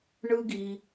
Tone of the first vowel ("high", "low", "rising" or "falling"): high